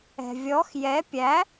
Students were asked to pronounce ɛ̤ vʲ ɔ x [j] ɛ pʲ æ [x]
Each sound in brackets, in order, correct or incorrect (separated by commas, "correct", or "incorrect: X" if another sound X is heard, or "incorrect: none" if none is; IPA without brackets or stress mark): correct, incorrect: none